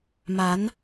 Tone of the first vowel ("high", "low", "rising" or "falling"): rising